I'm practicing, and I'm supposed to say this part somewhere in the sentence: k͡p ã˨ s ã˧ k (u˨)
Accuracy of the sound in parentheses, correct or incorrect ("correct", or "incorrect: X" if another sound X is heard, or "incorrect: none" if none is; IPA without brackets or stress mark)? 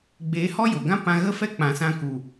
correct